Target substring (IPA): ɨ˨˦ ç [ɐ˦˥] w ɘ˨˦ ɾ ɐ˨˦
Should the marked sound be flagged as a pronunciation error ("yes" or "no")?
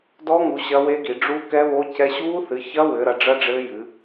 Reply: no